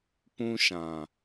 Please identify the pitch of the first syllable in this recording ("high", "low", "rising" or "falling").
high